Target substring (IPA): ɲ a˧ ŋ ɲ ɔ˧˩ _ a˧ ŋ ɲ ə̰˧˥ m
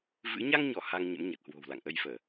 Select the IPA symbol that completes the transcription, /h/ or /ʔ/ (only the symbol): h